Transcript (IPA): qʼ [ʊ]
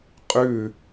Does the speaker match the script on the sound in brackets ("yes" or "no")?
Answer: no